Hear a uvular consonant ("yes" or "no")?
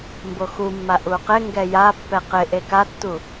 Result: yes